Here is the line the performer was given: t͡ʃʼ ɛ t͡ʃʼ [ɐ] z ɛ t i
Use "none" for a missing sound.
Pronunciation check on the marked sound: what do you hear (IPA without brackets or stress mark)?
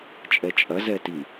ɐ